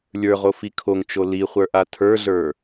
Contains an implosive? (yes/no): no